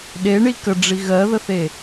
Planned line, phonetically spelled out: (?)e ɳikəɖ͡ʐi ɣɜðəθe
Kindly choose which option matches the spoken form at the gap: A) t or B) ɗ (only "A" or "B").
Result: B